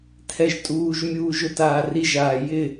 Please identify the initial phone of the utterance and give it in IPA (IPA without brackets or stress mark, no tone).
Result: tʰ